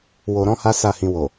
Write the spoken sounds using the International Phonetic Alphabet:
wo˧ɾɔ̃˦ha˦ sa˦˨hĩ˧wo˨

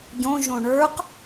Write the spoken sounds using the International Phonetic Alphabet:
ɟõ ʒõɳə˞q

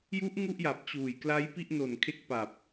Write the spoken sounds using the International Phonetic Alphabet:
ju˦˥ʔ ŋu˥˩ʔja˨˩p̚t͡ɕuː˨˩j kla˦˥jpi˥˩ʔno˨˩n kʰe˥˩k̚pa˨˩p̚

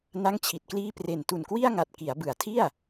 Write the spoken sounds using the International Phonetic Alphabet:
na˥˩ŋt͡ɕʰi˨˩t̚kliː˥˩ pre˨˩ntu˨˩nkwi˥˩a̯ŋa˨˩t̚ ki˩˦a̯bɯ˩˦a̯tʰi˥˩a̯

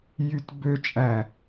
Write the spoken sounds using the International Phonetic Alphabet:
jytbøt͡ʃʼæ

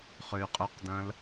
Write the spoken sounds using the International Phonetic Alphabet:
χøy̯qʼøqdɐ̃l

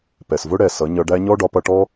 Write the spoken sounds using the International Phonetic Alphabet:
pɛ˨svʊ˦ ɽɛ˨sʌ˨˦ ɲʌ˧ɖæ˦ ɲɔ˦ɖɒ˨˦pʌ˧ʈɔ˦

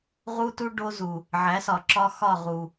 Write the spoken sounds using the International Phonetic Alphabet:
ʁu˦tu˦ ɖo˦zu˨ | ʕæ˨˦sɒ˨ ǁɒ˦xɒ˦˨ ʁu˨

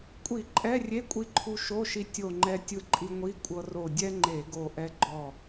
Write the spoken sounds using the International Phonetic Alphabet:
kʷʼi˧˩˧ ǃʼɛ˧˥˧rʲe˧˥˧ kʷʼi˧ǃʰu˧ ʃo˧˥˧ʃi˧ tʲo˧˩ŋ͡ǃɛ˧ tʲɯ˧ǃʼi˧ŋʷi˧˥˧kʷʼɤ˧ ro˧˩dʲɛ˥ŋ͡ǃe˧˩˧ ɡo˧˩ ʔɛ˧ ɡ͡ǃɔ˧˩

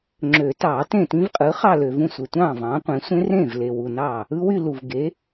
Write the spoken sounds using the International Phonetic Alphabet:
ŋ͡ǁø˨˩˦ tɑː˨˩˦tẽ˥˩ tĩ˦˥vqʼɯ˩˥ χɑ˥˧lø˨vũ˥˩ sʷe˨tʷɑ̃ː˥˩vɑ̃ː˩˥ qʷẽ˩˥ sʷẽ˦˥rẽ˥˩v le˨wu˨nɑː˥˩ | ɯ˦˥wy˥˧ lu˨v ɡe˩˥

